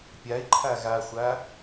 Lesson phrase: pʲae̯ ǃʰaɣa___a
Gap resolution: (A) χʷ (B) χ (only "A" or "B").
A